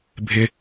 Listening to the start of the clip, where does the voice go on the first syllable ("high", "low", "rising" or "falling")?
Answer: high